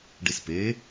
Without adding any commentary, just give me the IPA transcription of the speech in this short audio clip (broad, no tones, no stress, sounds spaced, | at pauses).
ɖ i s p e